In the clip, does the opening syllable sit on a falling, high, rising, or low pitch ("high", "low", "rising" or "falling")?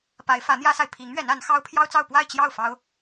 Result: rising